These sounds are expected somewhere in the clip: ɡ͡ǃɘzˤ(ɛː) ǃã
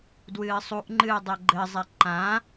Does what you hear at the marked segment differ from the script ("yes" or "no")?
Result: yes